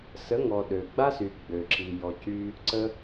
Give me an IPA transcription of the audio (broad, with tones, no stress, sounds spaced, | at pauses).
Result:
s ə˨˦ ŋ ɔ˨ ɗ ø˨ ɡ͡b a˦ s y˨ ɡ͡b ø˨ ǁ i˨ j ɔ˨ c y˧ | ǀ ə˧